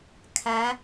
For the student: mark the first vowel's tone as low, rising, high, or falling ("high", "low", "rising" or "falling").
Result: rising